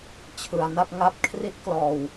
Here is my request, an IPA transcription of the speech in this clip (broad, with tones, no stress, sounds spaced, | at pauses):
t͡ɕʰ ɯ˧ a̯ n a˥˩ p̚ ŋ a˦˥ p̚ kʰ r i˦˥ t̚ k l ɔː˧ w